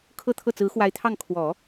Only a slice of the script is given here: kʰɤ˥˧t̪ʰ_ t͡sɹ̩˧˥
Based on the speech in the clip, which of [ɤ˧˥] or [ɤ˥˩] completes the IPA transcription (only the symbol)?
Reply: ɤ˥˩